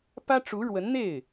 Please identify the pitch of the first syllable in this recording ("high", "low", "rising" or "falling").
high